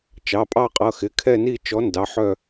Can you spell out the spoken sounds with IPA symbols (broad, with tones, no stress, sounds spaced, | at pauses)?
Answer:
t͡ʃ ɑ˩˧˩ pʼ ɑ˦˨ qʼ ʌ˩˧˩ x ɪ˩˧˩ kʰ ɛ˦˨ n i˦˨ t͡ʃ ɔ˨˥ n d ɑ˩˧˩ ħ œ˦˨